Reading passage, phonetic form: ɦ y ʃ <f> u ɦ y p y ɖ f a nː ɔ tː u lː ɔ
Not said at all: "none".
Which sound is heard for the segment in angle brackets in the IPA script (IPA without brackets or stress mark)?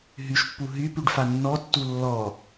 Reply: pː